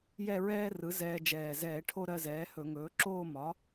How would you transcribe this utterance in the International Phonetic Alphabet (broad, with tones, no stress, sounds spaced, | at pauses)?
j ɛ˥˧ ɹ ɛː˥ r ɯ˩˥ z ɛː˧ d͡ʒ ɛː˨˩ z ɛː˧˩˧ ʈʰ o˥˧ ɾ ɜ˥˧ z ɛː˩˥ h ɵ˧˩˧ ŋ ɵː˩˥ ǁ oː˥˧ m ɒ˩˥